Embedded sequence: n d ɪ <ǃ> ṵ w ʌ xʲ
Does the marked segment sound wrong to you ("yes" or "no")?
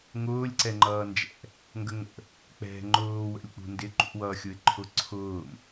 no